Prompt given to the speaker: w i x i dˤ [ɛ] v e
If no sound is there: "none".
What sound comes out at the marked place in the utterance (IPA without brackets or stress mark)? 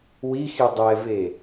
ɛ